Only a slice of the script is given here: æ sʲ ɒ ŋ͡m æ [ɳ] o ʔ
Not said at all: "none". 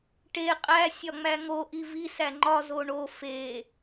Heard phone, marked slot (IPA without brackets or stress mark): ŋ